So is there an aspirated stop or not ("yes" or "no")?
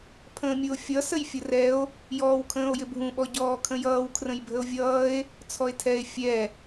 yes